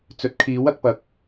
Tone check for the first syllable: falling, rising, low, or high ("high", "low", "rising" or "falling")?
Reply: rising